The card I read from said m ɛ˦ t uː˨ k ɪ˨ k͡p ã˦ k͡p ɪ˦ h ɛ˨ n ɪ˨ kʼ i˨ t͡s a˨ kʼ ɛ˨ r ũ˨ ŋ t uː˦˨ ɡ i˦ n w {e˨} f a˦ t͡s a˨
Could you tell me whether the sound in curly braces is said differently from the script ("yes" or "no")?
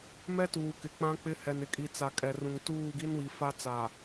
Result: yes